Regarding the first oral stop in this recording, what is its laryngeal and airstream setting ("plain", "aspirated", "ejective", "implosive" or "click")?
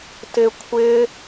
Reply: plain